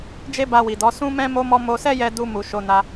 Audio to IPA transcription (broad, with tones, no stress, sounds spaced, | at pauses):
d͡ʒ e˦ b a˧ w i˨ d ɔ˨˦ s ũ˦ m ɛ̃˦ m o˧ m ɔ˧ m o˧ s ɛ˦ j ɛ˧ d u˧ m u˨ ʃ o˧ n a˧